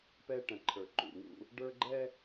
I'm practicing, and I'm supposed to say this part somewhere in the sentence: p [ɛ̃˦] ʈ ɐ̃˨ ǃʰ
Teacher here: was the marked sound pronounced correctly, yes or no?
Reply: no